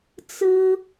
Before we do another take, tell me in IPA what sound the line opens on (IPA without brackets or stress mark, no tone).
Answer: t͡s